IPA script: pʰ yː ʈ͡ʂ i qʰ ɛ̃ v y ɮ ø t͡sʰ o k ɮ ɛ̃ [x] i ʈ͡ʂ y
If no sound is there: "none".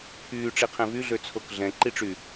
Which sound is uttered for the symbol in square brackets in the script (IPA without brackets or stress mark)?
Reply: ǃ